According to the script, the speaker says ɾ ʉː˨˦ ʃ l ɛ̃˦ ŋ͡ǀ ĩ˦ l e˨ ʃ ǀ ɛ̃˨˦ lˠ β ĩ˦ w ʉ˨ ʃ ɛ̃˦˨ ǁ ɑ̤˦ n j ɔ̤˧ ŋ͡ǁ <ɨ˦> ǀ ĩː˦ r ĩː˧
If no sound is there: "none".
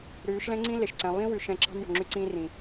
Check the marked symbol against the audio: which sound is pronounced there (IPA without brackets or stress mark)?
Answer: y˦